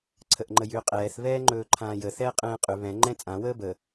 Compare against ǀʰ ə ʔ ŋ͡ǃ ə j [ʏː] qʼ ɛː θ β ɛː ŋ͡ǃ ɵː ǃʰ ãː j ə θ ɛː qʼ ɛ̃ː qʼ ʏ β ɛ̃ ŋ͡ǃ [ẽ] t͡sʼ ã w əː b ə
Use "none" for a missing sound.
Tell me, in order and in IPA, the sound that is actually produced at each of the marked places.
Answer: ʏː, ɛ̃

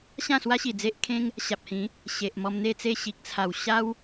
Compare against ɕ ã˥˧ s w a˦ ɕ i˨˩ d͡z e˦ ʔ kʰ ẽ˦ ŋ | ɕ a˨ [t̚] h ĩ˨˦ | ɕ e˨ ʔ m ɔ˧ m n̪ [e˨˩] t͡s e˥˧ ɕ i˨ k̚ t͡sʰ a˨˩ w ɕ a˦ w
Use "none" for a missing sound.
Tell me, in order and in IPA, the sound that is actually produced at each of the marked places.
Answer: p̚, e˥˧

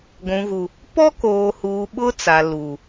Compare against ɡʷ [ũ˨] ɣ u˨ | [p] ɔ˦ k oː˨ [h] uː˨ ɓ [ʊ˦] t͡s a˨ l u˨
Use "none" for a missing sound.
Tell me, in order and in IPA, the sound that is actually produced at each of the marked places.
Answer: ũ˨, p, h, ʊ˦

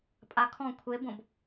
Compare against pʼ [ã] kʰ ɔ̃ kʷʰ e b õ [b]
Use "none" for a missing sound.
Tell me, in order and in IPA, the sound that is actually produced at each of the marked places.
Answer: a, b

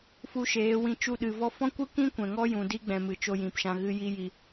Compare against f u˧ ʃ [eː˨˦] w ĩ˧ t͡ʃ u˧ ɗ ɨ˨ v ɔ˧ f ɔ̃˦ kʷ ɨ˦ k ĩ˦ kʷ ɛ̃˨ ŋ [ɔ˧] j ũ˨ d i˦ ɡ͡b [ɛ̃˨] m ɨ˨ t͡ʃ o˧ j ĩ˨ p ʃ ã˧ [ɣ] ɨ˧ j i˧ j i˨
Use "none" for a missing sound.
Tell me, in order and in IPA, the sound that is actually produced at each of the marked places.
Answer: eː˨˦, ɔ˦, ɛ̃˨, ɣ

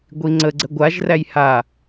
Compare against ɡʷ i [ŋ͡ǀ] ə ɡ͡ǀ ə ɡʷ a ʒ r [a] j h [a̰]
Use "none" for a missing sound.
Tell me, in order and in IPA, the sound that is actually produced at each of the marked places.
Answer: ŋ͡ǀ, æ, a

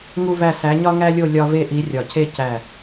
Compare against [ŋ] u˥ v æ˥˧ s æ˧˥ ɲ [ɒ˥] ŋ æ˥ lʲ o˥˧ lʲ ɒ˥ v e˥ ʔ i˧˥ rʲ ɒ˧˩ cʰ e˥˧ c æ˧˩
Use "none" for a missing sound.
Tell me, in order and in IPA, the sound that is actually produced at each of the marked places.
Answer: ŋ, ɒ˥

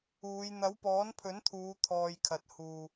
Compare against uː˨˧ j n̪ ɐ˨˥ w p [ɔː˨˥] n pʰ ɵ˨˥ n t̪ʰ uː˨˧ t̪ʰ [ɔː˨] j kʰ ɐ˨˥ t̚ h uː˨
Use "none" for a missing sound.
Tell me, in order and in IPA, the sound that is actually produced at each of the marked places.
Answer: ɔː˨˥, ɔː˨

